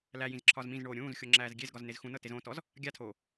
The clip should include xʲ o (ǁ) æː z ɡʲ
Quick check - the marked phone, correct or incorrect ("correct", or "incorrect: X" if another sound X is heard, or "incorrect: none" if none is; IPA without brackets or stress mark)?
incorrect: ŋ͡ǁ